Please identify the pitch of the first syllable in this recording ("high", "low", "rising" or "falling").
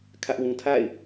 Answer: high